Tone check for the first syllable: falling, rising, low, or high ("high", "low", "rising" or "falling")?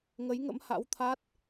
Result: rising